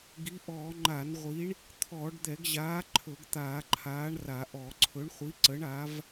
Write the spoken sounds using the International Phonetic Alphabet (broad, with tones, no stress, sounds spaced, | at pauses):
ɡ i˨˥ ʔ ɔː˧˩˧ ŋ͡ǃ a˧˩˧ n ʁʷ i˨˥ ɳ | t̪ʰ ɔː˧˩˧ ɖ d̪ ɛ˧˩˧ ɡ ʑ aː˨˥ ǃʰ ɵ˧˩˧ ɡ t̪ aː˧˩˧ ǃʰ aː˨˥ ɳ r a˧˩˧ ʔ ɔ˧˩˧ ǀʰ ɵ˨˥ ɳ χʷ i˨˥ ǀ ə˨˥ ɳ a˨˥ v